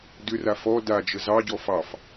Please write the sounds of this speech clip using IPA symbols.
d ʏ r a f ɔ d a d͡ʒ ə z ɑ ɟ ɔ f ɑ f

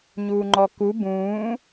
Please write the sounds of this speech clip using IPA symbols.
ɲ uː ŋ͡ǃ ɔ k u b ũː

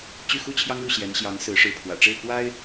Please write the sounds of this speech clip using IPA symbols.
t͡ɕ y˥˩ x u˥ t͡ɕʰ j ɑ˥ ŋ ɻ u˥˩ ɕ j ɛ˧˥ n ɕ j ɑ˧˥ ŋ s ɹ̩˧˥ ʂ ɻ̩˧˥ pʰ w ä̰˨˩ ʈ͡ʂ e˥˩ ɪ̯ k w a˥ ɪ̯

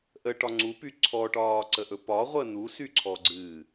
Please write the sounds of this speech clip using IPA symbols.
ʔ ə ʈ ɒ ŋ͡ǀ u p y ǀʰ ɔ ʈ ɒː ǀ ə ʔ ɵ p ɒ ʁʷ ə n u s y ǀʰ ɔ ɡ͡ǀ ɨː

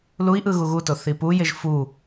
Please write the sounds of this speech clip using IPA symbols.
l u i̯ ʔ ɯ ɣ u ɣ u t o θ i p u j e ʒ f u

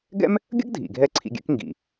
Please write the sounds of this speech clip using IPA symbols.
ɡ ɛ̰˥ m | ɡʲ ə̰˥ ɡ dʱ ḭ˩ ɡʱ ɛ˧ ǀʰ ḭ˧ ɡʲ ɛ̰˥ k ŋ ɡ ḭ˩

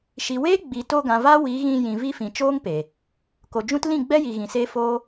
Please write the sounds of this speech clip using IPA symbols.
ʃ i˨ w eː˦ ɡ͡b i˨ t o˧ ɡ ã˨ v a˦ w i˨˦ ɣ ĩ˧ j ĩ˨ v i˧ f ĩ˨ t͡ʃ oː˦ ŋ p e˨ | k o˨ d͡ʒ ũ˦ t l ĩ˦˨ ɡ͡b ɛ˦ j i˨ ɣ ĩ˨ s e˦ f o˦

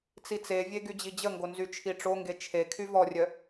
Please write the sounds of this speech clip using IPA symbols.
t͡s i t͡s e vʲ e ɡ y d͡ʑ i d͡ʑ ə ŋ ɡ o n z y t͡ʃʰ i ʈ͡ʂ o ŋ ɡ e t͡ʃʰ e kʰ y v ɔ rʲ œ

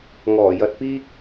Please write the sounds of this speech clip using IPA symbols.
ŋ ɔː˨˩ j ɐ˧ t̚ p iː˥ k̚

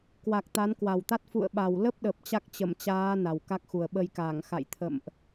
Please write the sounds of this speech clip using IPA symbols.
k w a˨˩ k̚ t̪ a˨˦ n k w a˨˩ w t̪ a˦˥ t̚ f ṵ˧˨ ə̯ ɓ a˨˩ w l ə˦˥ p̚ ɗ ə˨˩ p̚ t͡ɕ a˦˥ k̚ t͡ɕ ə˧˩ m t͡ɕ aː˨˦ n a˨˩ w k a˦˥ k̚ x u˨˩ ə̯ ɓ ə˧ j k aː˧˩ ŋ x a̰˧˨ j t̪ʰ ə̰˧˨ m ʔ

